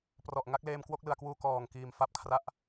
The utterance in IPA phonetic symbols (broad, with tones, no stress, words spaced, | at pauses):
prɔ˨˩ʔ ŋa˥˩k̚leː˧mkwo˥˩k̚ lɯ˧a̯kwuː˥˩ kɔː˨˩ŋ kiː˨˩mfa˥˩p̚kʰra˦˥ʔ